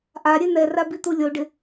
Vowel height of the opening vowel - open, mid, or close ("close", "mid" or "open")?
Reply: open